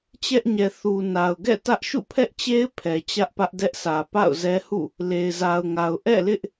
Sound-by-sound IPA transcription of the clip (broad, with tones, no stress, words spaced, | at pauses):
t͡ɕɛ˦ʔɲɛ˨ θu˨ na˨ʊ̯ɡɛ̰˦˨ tä˦ʔʃṵ˦˨pʰɛ˦ʔt͡ɕe˦ɪ̯ pʰɛ˨ t͡ɕä˦ʔpä˦ʔdɛ˦ʔsʰä˨ pa̰˦˨ʊ̯zɛ˦hṵ˦˨ | le˨ɪ̯za˨ʊ̯ŋa˨ʊ̯ ʔɛ̰˦˨lɪ˦ʔ